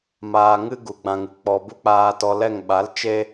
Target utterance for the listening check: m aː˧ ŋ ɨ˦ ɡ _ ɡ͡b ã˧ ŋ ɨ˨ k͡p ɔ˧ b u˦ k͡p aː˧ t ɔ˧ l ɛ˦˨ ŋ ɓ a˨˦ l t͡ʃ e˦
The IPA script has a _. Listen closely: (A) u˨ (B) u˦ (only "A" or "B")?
A